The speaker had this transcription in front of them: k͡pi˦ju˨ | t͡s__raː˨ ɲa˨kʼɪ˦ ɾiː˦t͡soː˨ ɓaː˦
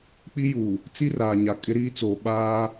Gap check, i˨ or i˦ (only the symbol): i˦